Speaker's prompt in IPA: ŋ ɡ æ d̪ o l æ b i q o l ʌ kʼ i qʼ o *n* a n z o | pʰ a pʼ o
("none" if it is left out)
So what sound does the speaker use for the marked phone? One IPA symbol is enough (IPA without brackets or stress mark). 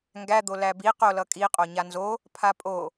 ɲ